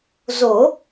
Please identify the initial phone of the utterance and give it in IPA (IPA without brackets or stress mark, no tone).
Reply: z